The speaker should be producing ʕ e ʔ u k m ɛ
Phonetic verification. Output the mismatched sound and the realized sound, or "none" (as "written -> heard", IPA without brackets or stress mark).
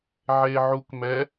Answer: ʔ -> ʕ